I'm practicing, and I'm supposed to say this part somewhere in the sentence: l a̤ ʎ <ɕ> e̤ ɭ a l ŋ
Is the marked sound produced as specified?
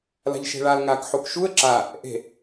no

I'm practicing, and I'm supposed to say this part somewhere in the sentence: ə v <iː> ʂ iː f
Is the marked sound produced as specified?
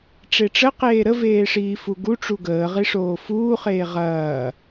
no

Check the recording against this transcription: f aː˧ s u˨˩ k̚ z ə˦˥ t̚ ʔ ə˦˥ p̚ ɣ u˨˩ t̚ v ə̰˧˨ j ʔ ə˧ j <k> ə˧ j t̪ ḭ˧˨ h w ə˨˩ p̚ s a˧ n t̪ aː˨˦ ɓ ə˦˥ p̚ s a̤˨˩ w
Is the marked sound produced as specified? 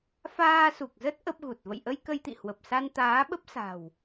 yes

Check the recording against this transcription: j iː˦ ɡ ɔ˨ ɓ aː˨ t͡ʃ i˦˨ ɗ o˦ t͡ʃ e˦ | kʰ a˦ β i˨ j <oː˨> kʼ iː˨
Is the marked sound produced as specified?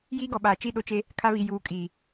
no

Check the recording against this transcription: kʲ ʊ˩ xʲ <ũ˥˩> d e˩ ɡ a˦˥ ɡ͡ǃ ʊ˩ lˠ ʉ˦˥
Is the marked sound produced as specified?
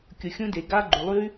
no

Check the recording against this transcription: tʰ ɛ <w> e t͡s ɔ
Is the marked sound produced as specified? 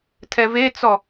no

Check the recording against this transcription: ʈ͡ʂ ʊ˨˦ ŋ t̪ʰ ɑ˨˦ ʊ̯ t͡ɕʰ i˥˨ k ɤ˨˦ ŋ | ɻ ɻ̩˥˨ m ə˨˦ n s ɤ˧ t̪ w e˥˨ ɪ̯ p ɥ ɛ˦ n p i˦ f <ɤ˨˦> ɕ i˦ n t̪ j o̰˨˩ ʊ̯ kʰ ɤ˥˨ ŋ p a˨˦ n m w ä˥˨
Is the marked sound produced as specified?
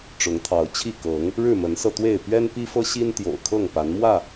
no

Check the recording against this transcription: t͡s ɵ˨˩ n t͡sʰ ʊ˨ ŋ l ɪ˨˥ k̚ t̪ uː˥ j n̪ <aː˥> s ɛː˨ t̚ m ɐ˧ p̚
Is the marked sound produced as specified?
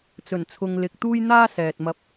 yes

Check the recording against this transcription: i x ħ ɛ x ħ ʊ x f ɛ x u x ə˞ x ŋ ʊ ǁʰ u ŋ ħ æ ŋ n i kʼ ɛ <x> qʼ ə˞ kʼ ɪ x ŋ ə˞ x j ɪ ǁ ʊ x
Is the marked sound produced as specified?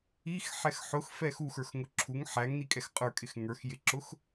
yes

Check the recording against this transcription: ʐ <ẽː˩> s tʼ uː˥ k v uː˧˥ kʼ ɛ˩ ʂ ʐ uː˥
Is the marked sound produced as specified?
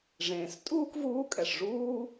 yes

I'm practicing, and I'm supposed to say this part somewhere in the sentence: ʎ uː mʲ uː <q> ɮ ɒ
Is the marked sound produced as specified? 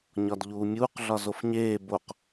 yes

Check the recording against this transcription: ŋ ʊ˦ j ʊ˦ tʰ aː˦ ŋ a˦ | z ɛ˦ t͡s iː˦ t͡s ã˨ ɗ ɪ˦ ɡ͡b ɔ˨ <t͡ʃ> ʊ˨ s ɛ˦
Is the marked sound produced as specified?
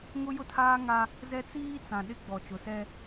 yes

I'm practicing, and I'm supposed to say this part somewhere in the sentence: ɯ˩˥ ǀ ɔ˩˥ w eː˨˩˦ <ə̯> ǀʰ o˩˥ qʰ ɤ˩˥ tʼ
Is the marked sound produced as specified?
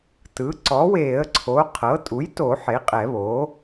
yes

